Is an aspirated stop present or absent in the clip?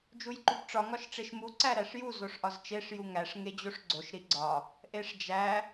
absent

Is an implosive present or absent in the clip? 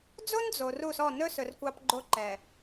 absent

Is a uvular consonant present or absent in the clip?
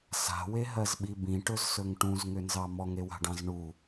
absent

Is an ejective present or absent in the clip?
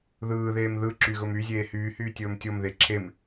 absent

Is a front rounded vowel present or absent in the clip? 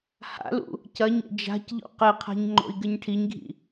absent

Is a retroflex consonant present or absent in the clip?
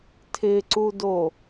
absent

